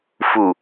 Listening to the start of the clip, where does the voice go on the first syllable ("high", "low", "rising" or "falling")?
low